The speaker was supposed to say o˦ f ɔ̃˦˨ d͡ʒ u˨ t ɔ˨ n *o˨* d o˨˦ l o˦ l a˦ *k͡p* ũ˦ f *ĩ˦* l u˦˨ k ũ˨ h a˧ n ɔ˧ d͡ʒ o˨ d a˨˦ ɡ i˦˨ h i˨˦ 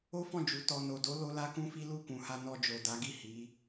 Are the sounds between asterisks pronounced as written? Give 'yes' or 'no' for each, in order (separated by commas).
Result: yes, no, no